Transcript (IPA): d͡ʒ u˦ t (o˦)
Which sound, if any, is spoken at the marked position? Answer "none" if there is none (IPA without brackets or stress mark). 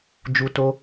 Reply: o˦